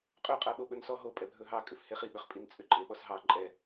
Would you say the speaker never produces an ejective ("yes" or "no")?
no